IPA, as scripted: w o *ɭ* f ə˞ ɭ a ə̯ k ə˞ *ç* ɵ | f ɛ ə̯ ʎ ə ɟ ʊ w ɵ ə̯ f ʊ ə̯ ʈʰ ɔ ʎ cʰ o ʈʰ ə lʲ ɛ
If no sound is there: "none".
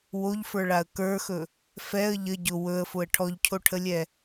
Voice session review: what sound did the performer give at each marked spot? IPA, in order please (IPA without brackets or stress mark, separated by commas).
ʎ, x